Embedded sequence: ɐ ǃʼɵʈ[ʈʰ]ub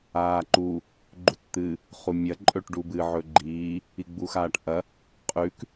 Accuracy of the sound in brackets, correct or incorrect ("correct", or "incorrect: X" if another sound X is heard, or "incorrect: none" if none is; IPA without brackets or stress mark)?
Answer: incorrect: ɖ